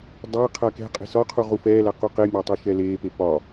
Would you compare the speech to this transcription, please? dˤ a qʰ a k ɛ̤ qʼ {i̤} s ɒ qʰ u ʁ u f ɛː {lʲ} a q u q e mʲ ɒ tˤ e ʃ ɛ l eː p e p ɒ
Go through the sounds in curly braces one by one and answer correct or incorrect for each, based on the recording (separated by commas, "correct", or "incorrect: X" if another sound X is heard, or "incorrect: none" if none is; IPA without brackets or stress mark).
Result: incorrect: e̤, incorrect: l